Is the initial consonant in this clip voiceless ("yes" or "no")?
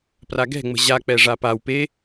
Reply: yes